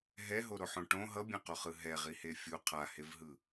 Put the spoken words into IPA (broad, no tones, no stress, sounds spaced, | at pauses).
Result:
ɦ ɛ ɦ o ɾ o ħ õ ʈ õ ɦ ʌ bʲ ɛ̃ q o χ ɯ ɦ ɛ ʁ i h e fʲ u qʰ a h e v ɦ ɯ